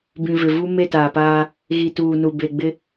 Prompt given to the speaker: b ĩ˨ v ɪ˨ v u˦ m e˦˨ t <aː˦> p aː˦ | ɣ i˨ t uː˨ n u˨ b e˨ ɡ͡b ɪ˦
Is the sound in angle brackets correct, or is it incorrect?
incorrect